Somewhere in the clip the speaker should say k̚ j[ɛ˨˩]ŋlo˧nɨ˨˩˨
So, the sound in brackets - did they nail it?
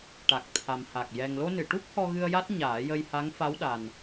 yes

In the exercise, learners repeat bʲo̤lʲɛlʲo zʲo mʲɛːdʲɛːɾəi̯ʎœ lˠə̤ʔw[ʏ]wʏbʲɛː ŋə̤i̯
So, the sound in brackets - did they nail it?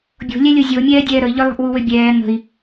no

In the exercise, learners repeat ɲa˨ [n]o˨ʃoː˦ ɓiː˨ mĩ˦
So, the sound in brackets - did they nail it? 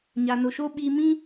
yes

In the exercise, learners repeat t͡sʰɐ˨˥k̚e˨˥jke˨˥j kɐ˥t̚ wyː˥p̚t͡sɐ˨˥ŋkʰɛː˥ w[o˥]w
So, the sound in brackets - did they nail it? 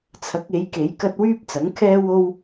yes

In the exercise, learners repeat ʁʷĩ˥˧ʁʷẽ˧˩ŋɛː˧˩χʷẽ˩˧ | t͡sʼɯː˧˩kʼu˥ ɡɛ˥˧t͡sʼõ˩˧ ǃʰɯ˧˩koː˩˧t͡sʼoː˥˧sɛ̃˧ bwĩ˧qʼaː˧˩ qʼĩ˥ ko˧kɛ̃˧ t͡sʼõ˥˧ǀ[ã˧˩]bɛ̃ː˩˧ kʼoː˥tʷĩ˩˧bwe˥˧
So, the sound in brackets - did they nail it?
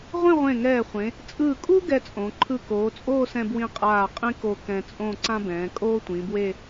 no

